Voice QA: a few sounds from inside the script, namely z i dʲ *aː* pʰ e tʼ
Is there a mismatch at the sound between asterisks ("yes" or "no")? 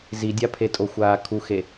yes